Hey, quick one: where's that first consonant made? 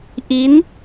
throat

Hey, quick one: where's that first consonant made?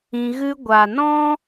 velum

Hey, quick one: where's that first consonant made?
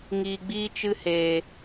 velum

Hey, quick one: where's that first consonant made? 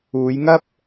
palate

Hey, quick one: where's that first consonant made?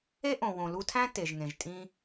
throat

